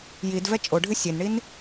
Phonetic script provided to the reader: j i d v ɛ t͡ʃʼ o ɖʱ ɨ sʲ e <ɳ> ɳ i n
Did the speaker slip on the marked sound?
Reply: yes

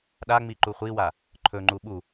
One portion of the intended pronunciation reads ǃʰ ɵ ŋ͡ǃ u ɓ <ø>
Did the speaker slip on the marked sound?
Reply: yes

